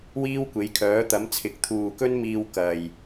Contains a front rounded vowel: yes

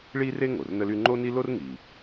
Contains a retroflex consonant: yes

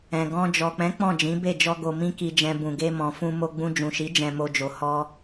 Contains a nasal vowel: yes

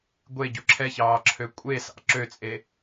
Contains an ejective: yes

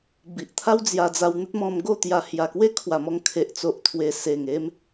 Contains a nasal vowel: yes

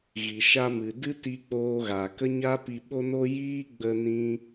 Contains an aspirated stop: no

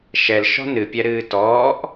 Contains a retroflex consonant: no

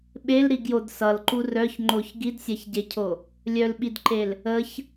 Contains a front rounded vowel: yes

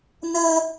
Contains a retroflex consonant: no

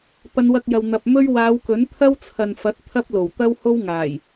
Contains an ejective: no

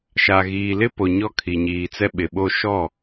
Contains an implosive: yes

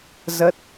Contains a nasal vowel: no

